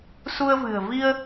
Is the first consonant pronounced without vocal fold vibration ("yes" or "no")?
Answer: yes